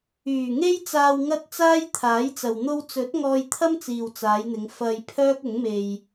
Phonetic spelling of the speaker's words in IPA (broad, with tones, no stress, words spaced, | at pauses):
yː˨˩ ŋe˥jt͡saː˧w ŋɐ˥t̚ t͡saː˥j t̪ʰaː˨˥jt͡sɐ˨wn̪o˥w t͡sɵ˨˥t̚ ŋɔː˧jt̪ʰɐ˥m t͡siː˨wt͡saː˨˧jn̪ɪ˨˧ŋ fɐ˧j pʰœː˥k̚ʊ˨˥ŋme˧j